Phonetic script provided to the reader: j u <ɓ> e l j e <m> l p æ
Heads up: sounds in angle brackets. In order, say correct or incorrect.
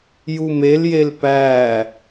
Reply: incorrect: m, incorrect: none

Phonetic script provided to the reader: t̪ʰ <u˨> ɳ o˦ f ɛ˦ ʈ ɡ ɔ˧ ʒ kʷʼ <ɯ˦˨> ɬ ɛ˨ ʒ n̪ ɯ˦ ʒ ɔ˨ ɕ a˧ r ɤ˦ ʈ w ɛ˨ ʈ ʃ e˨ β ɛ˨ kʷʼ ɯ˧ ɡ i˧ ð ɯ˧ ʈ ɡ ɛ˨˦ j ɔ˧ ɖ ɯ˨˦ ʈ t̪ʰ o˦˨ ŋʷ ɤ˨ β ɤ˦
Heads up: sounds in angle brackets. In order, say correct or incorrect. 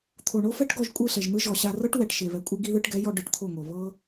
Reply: incorrect: o˨, correct

